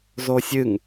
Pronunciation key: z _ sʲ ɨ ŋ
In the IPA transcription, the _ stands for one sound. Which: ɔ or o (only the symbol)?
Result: o